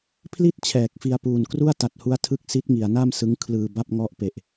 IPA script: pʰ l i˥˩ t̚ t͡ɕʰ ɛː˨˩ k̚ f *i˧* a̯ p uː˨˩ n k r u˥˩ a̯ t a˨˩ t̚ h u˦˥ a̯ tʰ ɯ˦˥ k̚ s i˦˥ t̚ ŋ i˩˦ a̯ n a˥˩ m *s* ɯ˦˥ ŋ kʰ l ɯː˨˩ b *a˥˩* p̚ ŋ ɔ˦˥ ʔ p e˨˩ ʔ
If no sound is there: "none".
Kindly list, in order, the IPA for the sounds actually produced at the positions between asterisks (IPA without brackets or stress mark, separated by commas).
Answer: i˧, s, a˥˩